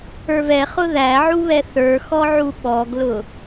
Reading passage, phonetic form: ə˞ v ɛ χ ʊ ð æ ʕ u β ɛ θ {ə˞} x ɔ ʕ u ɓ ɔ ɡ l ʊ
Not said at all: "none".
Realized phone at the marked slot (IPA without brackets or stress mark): ə˞